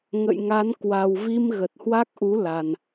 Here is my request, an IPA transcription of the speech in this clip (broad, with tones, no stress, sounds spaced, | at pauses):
ŋ ə̰˧˨ j ŋ a˨˦ n k w a˨˩ w v i˧ m ɣ ə˨˩ t̚ h w a˦˥ k̚ ʔ u˨˦ l a˨˩ n